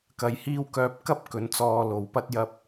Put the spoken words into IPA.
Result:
k ɐ˧ j h iː˥ w k œː˧ p̚ k ɐ˥ p̚ k ɵ˨˥ n t͡s ɔː˧ l o˨ w p ɐ˥ t̚ j ɐ˧ p̚

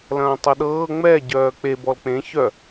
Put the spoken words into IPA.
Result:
l ɐ̃ː tˤ ɤ ɗ ɤː ŋ͡m ɛ ɟ œː k͡p e b ɔ l k͡p ẽ ç œ

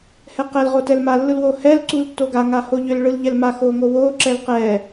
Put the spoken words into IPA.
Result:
h ɛ q ɛ l ʁ o t ɛ l m a lː ɯ l w o h ɛ l ǀ u l tː o ɡ a ŋ a h o ʎ ʏ l ɭ ɯ l ʎ ɛ l m a x o ŋ o w o ǁ ɛ l q ɛ

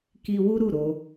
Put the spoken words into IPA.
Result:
k i˧ w u˦ ɾ u˦˨ ɾ o˧

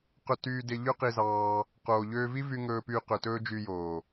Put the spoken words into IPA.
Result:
q ɵ˧ t yː˧ d e˧ ʎ ø˦ q i˧ z ɑː˧ | q oː˨ ʎ øː˧ v i˦ v y˧ ŋ ɵː˧ p yː˧ q ø˨ t ɵː˦ d͡ʒ yː˧ j oː˨

